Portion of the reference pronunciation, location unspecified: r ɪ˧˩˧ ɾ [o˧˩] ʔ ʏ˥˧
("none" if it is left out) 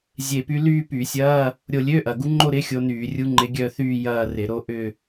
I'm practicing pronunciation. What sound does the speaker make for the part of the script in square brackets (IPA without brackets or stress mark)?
o˥˧